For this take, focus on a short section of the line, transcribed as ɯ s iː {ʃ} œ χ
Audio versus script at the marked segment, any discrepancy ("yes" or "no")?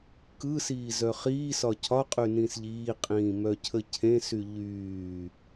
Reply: yes